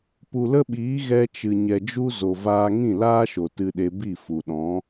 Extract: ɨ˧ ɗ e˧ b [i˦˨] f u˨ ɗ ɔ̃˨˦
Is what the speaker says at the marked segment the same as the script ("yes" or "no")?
yes